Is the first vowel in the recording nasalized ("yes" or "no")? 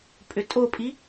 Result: no